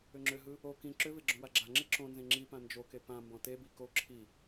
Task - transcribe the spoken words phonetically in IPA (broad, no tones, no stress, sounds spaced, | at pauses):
ʏ ŋ͡ǁ ʏ ɦ ɯ | o k ĩ ǁ ʏ v e ɡ͡ǁ õ w a ɡ͡ǁ a ŋ͡ǁ e ǁ õ n z ẽ ŋ͡ǁ i p ã n d͡ʒ o k e p ã m b ɔ̃ t e b i k o ǁʰ i